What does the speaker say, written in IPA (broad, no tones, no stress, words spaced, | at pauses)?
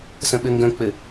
sə̃ɓɘŋɡə̃k͡pɘ